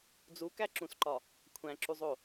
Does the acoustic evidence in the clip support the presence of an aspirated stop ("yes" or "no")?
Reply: yes